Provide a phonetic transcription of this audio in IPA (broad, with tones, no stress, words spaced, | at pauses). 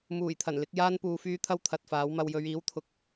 muː˨˩jt̪ʰɐ˨˩nlɪ˧k̚ jaː˧npuː˨fyː˧ t̪ʰɐ˥wt̪ʰɐ˨t̚faː˨˥wmɐ˧w jɵ˨˧ɥiː˨˥wt̪ʰʊ˨k̚